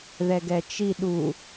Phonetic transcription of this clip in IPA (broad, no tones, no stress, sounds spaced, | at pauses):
ð ɛ ɡ ɛ t͡ʃ i ɗ u